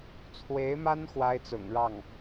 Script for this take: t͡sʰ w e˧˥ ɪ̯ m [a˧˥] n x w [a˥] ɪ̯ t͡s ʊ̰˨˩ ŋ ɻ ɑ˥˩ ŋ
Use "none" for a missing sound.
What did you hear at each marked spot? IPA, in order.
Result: a˥, a˥

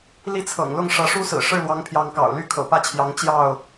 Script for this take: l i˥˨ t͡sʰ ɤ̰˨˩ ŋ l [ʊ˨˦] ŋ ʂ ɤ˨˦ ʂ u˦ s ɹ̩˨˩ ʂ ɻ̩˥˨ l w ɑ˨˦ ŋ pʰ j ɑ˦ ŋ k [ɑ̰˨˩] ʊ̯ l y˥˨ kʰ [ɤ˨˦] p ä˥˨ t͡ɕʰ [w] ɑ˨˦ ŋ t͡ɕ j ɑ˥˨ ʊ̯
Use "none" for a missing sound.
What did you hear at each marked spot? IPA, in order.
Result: ʊ˥˨, ɑ̰˨˩, ɤ̰˨˩, j

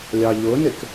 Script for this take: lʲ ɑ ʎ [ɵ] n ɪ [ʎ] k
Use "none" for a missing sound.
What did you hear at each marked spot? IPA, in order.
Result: ʊ, none

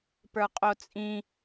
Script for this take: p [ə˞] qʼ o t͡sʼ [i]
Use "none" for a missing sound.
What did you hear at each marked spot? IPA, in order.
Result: ə˞, ĩ

